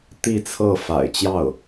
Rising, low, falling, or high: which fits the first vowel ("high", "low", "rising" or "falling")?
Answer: falling